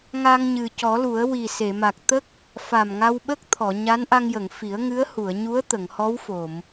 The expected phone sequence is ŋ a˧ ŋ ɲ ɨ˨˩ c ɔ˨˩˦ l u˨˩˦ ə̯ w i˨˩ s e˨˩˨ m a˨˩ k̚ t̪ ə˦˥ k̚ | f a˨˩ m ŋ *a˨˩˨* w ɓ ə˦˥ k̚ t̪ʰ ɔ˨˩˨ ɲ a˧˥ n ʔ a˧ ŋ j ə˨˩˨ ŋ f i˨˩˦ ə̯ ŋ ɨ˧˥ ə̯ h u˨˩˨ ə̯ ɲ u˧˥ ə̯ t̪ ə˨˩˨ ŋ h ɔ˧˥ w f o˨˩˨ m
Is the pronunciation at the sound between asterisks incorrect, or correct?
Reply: incorrect